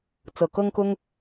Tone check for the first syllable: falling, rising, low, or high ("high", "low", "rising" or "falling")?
low